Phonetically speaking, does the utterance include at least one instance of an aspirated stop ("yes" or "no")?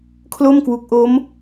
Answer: yes